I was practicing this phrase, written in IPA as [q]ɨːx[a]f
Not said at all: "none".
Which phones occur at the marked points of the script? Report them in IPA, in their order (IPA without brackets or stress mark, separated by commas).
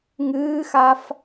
ŋ, a